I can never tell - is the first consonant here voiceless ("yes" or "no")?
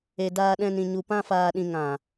no